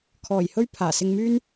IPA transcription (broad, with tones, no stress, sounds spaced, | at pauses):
kʰ ɔː˨˩ j h ɵ˥ ɥ pʰ aː˨˩ s ɪ˧ ŋ m yː˥ n